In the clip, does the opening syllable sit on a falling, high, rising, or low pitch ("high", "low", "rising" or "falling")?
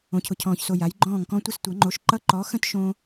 low